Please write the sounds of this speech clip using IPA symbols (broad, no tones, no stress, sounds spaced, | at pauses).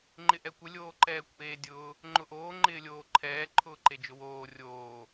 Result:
ŋ͡ǃ ɪ ʔ ɛ kʷ ɪ lʲ oː ǃ ɛː kʷ ʔ eː dʲ ʊː | ŋ͡ǃ ʊ ʔ oː ŋ͡ǃ ɪː lʲ oː ǃʰ ɛː ǃʰ ʊː ǃ e d͡ʒ ʊ w oː rʲ oː